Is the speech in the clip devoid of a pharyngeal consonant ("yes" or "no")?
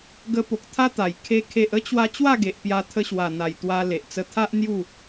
yes